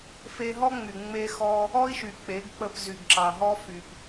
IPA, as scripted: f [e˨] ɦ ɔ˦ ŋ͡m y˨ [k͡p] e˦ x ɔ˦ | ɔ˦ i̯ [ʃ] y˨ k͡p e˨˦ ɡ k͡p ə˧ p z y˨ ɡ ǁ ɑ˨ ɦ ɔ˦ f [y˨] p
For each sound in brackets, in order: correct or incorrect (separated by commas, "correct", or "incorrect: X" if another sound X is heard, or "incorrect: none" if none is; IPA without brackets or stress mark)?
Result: incorrect: e˧, incorrect: ŋ͡m, correct, correct